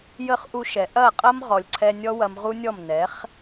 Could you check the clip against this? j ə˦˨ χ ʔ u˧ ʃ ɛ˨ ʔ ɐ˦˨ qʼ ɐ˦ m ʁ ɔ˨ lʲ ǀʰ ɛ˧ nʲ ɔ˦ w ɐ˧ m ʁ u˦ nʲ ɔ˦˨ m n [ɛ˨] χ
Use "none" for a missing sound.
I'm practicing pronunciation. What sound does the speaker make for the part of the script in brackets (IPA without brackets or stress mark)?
ɛ˨˦